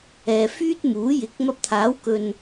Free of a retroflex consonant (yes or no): yes